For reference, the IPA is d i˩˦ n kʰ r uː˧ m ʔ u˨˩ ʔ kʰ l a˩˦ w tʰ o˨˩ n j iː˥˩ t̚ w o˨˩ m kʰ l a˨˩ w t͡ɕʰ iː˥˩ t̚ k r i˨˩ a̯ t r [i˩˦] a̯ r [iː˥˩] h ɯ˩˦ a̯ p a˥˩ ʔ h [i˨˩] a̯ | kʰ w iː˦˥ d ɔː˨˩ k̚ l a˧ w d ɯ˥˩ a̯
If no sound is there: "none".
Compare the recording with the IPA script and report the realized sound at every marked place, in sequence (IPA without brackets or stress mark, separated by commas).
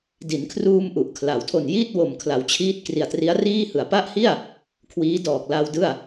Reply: i˦˥, iː˥˩, i˥˩